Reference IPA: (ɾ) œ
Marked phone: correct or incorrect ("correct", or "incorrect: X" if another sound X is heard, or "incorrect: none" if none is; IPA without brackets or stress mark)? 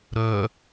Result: correct